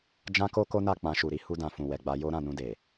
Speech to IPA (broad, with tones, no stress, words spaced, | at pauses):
d͡ʒã˧ko˧ ko˦na˦˨ k͡pã˧ ʃu˨ɾi˨˦ hu˧dã˨ fũ˨wɛ˨ ɡ͡ba˧jo˦ ɾã˦˨nũ˧de˨